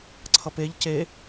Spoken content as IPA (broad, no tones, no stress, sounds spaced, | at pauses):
ǀʰ ʌ p e ʎ c e